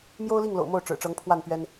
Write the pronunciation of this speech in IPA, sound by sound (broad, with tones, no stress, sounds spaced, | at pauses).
m j o˥ ʊ̯ l i˥˩ ŋ l o̰˨˩ ʊ̯ m o˥˩ ʊ̯ ʈ͡ʂ ɻ̩˨˩ ʈ͡ʂ ɤ˧˥ ŋ pʰ w a˥˩ n p ɥ ɛ˥ n